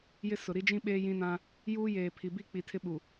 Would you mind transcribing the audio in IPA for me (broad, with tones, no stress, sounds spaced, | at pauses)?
j ɪ˦ s ʊ˨ ɾ i˦ d͡ʒ ĩ˦ ɓ eː˦ j ĩ˦ n ã˦ | j uː˦ j eː˨ pʰ i˨ b i˦˨ k͡p i˨ tʰ ɪ˦ ɓ u˨